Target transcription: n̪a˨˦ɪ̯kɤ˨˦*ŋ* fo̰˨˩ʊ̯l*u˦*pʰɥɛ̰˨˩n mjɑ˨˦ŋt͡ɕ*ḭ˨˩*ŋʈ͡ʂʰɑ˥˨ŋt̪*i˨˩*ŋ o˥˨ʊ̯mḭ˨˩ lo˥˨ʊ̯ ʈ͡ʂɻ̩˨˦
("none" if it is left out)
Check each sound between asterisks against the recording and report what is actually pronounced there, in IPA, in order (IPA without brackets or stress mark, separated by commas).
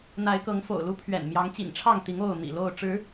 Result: ŋ, u˦, ḭ˨˩, i˨˦